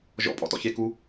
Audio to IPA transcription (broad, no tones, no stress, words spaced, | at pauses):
ʒɔ̰pʼɔ̰tɔ̰ çeku